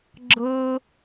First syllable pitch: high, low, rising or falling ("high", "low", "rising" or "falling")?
high